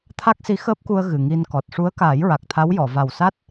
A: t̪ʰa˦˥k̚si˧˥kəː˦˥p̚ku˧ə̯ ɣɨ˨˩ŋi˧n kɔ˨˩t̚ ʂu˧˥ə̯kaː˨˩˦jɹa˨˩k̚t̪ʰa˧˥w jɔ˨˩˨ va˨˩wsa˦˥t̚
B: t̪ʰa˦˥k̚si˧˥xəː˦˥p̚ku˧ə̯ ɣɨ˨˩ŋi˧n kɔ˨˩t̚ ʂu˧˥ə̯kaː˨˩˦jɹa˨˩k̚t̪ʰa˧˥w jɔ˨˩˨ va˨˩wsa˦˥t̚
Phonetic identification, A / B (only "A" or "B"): B